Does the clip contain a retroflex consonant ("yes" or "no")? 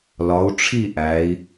yes